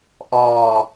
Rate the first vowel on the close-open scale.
mid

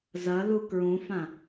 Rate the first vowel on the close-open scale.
open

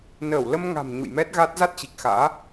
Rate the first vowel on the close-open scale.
mid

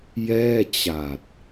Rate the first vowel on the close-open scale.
mid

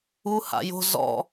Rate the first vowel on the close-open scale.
close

